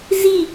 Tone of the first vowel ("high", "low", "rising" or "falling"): falling